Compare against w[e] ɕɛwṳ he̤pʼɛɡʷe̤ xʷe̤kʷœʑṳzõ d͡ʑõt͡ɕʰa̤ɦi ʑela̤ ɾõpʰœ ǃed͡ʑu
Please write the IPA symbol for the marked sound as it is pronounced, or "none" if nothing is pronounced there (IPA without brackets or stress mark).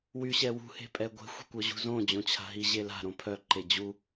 y